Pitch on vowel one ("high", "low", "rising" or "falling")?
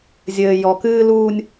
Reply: low